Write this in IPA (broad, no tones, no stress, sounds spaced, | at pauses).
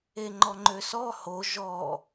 e ŋ͡ǃ ɔ ŋ͡ǃ ø s ɔ h o ʒ ɔ